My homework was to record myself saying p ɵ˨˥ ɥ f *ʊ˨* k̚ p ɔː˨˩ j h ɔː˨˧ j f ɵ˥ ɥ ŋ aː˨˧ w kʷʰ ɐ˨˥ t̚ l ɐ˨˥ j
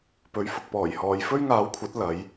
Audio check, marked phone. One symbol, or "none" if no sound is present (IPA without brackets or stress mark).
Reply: ʊ˨